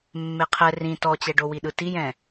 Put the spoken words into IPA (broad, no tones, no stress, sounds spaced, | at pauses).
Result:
mː e qʰ ɛ r ĩ t ɔ t͡ɕ ɛ ɖ o w i ɗ ɯ t i j ɛ̃